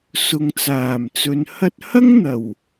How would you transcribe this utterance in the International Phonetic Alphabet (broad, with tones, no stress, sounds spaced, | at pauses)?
s ʊ˨ ŋ t͡s aː˨˩ m t͡s ɵ˨˧ n h ɐ˥ t̚ h ɐ˥ ŋ n̪ ɐ˨˩ w